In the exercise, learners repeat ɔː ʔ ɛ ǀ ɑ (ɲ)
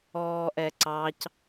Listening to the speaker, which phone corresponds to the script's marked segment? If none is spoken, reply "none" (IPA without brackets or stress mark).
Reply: c